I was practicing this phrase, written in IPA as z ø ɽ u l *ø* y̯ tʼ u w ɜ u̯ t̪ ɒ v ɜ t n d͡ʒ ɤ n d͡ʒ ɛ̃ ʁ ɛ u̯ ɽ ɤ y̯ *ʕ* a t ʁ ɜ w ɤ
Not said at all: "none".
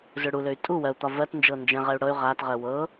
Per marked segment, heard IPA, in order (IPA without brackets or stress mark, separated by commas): ø, ʁ